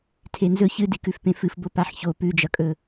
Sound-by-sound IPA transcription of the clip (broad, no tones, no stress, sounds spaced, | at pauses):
tʰ e n z ɵ ç ɨ d i k ʉ f p ẽ f ɨ f b o p a ħ ç o p ʉ d͡ʒ ɐ kʼ ɵ